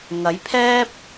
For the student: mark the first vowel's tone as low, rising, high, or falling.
rising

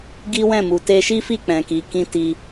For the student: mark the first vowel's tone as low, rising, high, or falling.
high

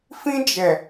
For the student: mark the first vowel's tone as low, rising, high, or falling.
high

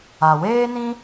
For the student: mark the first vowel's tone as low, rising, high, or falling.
low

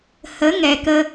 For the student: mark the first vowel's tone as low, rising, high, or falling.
rising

